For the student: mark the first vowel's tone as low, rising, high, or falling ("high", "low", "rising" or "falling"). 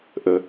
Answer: low